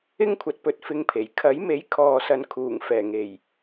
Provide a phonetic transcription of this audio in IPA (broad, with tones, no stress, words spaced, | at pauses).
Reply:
ɪ˥ŋkʷʰɐ˨˥t̚pɵ˨t̚ fɪ˧ŋpʰe˨˩j kʰɐ˨˥jme˨˥j kʰɔː˨sɐ˨n kʰuː˨˩ŋfɛː˨˩ ŋe˨˩j